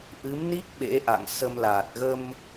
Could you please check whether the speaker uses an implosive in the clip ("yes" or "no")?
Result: yes